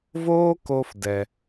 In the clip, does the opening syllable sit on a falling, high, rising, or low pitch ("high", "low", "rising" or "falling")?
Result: high